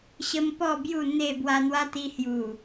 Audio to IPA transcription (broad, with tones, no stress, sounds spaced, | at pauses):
ɕ ə˦ m p ɔ˥˧ b j u˥˧ n̪ e˥˧ b w a˧ n̪ w a˦ t̪ i˧ h j u˨˩